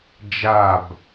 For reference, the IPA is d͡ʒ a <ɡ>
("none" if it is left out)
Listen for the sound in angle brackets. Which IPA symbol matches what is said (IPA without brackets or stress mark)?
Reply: b